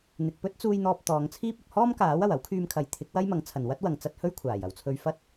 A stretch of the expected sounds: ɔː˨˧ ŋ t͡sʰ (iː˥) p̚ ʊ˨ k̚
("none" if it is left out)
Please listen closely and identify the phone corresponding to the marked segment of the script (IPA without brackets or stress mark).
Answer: iː˥